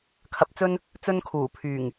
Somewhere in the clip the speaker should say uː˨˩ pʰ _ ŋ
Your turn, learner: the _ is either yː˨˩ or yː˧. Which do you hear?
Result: yː˨˩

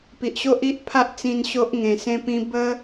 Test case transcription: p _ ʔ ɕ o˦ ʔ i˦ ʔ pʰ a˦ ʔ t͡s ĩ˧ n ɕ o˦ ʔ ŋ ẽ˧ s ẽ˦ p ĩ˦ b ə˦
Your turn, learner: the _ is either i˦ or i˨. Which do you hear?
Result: i˨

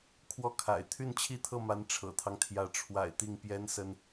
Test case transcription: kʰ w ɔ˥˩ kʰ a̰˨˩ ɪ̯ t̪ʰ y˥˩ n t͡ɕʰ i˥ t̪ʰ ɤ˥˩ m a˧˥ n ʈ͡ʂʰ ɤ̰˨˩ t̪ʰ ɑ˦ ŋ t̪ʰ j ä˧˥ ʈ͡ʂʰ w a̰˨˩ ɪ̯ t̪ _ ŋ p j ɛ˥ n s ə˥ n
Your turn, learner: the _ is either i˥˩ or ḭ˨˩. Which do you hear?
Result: i˥˩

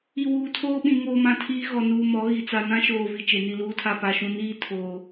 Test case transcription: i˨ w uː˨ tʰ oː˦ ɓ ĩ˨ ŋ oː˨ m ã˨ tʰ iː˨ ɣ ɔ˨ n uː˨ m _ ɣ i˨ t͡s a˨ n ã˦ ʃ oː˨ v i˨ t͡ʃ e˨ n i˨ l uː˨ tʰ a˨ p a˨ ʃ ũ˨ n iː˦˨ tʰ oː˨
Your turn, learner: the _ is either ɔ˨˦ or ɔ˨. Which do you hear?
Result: ɔ˨˦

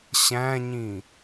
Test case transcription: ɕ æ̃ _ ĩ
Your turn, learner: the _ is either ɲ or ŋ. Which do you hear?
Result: ɲ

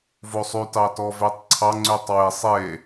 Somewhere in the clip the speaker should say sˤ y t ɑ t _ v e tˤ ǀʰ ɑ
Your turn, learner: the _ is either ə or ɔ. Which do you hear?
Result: ɔ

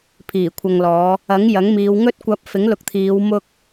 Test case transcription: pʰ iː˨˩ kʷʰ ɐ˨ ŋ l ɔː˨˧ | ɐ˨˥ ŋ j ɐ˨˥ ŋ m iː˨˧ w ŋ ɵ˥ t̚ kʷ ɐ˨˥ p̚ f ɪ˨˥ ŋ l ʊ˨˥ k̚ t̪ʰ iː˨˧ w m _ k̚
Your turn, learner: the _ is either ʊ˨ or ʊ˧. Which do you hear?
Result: ʊ˧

